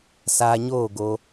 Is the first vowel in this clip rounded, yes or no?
no